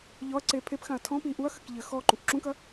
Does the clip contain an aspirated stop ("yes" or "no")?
yes